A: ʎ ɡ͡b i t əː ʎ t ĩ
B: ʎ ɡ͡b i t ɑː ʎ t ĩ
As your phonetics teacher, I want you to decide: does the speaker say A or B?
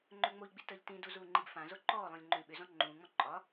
A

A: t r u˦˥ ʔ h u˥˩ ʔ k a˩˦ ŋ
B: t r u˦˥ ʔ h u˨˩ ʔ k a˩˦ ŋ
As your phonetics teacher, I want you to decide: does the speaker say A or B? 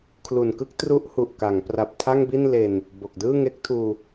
B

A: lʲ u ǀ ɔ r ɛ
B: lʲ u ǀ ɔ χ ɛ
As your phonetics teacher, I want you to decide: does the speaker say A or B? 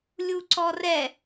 A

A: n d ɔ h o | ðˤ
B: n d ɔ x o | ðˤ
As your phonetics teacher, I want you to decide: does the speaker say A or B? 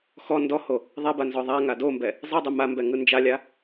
A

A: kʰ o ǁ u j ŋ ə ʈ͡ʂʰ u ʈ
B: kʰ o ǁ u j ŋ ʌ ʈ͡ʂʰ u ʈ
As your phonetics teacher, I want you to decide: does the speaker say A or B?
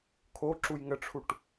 A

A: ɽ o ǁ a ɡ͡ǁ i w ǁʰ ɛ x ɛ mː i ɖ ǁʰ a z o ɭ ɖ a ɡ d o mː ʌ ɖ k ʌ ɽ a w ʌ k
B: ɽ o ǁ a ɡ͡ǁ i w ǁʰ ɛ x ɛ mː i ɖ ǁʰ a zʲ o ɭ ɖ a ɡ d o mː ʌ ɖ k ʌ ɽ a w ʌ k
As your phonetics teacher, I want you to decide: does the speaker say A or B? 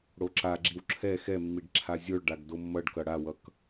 B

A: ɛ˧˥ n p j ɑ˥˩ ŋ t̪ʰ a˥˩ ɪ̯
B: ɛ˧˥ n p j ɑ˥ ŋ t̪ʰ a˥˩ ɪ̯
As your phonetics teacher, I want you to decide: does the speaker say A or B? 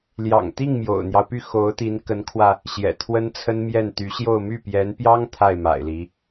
B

